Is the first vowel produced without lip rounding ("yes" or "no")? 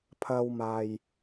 yes